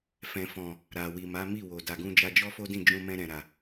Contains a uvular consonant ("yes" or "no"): no